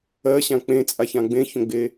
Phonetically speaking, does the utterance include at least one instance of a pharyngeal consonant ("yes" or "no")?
no